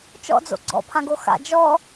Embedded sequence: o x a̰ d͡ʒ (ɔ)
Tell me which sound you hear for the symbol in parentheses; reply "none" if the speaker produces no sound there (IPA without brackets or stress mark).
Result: ɔ